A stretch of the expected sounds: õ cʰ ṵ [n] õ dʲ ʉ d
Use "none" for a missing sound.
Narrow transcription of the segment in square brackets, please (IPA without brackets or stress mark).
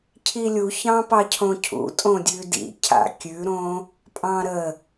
tʼ